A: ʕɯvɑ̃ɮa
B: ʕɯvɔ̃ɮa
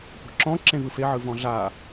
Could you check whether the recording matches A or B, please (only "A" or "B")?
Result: B